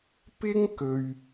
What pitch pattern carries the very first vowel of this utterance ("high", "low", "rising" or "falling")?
high